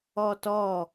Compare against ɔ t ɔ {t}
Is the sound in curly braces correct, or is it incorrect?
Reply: incorrect: none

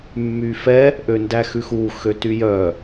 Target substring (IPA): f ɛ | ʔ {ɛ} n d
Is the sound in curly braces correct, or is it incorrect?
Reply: incorrect: ø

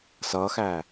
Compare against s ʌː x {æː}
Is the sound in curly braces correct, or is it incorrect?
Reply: correct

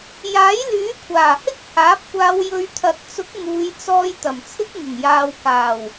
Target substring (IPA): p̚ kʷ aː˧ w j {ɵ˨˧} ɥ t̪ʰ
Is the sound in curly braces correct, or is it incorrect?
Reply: correct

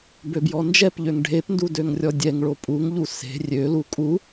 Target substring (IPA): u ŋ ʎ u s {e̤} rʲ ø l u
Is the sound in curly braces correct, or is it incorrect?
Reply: correct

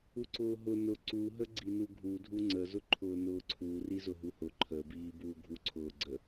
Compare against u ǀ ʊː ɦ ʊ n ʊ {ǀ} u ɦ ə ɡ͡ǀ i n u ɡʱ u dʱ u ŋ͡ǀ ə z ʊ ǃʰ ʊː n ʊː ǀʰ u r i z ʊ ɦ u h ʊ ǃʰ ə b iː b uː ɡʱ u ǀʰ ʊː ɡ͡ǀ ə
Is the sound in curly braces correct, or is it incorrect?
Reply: correct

